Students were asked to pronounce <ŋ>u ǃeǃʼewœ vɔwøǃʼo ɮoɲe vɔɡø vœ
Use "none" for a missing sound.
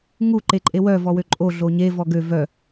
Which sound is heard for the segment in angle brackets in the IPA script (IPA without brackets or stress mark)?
ŋ